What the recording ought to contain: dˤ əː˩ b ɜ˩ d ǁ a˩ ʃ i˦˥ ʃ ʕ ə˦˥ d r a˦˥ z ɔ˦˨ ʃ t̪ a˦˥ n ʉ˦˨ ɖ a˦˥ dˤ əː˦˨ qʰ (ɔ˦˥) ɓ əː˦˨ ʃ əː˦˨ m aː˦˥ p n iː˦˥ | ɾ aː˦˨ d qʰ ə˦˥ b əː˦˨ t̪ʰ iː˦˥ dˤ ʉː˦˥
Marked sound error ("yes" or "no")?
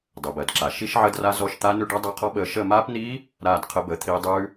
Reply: no